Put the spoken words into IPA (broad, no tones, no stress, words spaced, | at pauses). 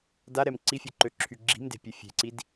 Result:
daɾɛm ǀifʲoǃøǁʰy ɡ͡ǁi̤mde̤pʲe fʲe̤ǀid